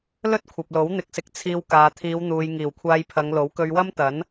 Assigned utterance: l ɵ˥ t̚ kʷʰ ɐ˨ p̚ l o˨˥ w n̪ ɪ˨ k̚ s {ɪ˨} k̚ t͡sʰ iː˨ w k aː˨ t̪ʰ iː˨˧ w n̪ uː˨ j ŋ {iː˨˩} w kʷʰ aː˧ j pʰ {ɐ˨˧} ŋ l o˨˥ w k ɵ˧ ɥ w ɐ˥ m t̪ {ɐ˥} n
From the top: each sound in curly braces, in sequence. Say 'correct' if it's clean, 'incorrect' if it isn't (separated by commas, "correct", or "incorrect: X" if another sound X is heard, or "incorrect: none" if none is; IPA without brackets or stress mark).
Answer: correct, correct, correct, incorrect: ɐ˨˥